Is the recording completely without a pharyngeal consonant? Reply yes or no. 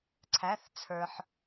no